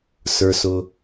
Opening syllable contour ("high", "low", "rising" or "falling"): low